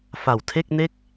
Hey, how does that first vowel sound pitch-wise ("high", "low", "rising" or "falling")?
low